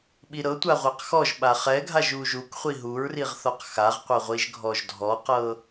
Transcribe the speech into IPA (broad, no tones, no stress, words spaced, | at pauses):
ɓiɾɤ tʷaʁʷaqxɔʒ ɓaχɛɡʱaʒ uʒuk χʷiɦuɹriʁ θɔqxaʁqʷɤʁʷiʒ ɡʱɔʒdʱɔqɤ